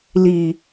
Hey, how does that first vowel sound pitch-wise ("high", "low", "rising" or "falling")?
low